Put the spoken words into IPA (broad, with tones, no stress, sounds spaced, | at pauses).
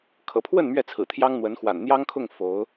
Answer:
kʰ ɤ̰˨˩ pʰ w ə˥˨ n m ɥ ɛ˥˨ t͡sʰ ɹ̩˨˩ t̪ʰ j ɑ˦ ŋ n̪ w ə˨˦ n x w a̰˨˩ n n̪ j ɑ˦ ŋ kʰ ʊ˥˨ ŋ f o˨˦ ʊ̯